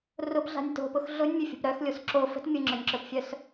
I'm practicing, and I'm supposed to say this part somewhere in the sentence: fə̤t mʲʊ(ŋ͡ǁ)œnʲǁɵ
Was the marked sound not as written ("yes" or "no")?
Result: no